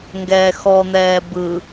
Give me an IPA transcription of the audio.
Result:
ŋ ɡ ɛː x ɔ n̪ ɛː b ɯ

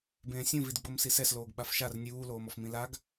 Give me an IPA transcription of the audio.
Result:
b ẽː sʲ ũ v i d ɡ͡b o m s i s ɛ s l oː ɡ ɓ a f ʃ a r nʲ uː l oː m ɔ f m ĩ l a ɡ

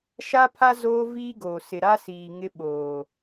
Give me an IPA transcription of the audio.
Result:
ʃ a˦ pʰ a˦ z oː˦ v iː˦ ɡ oː˨ s ɪ˨ ɾ a˦ s iː˨ ŋ ɪ˦ ɓ oː˨

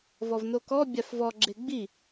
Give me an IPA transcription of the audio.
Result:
v ɔ v n o k ɔ bʲ a f v ɔ ɡ͡ǁ e ɡ͡b i

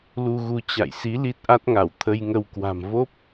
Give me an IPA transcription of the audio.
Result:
l u˧ ɣ u˧ t͡ɕ a̰˧˨ j s i˨˦ l i˦˥ t̚ ʔ a˦˥ t̚ ŋ a˧˩ w t̪ʰ ə˧ j ŋ ə˧ w k w a̤˨˩ m v o˦˥ p̚

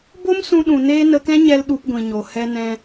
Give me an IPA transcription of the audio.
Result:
b o˦ m s ũ˧ ɗ ũ˨ n eː˦ n ə˧ k ɛ̃˦ ɲ ɛ˧ l ɗ u˧ p ɡʷ ĩ˨ ɲ o˨ h ɛ˧ n ɛ̃˧

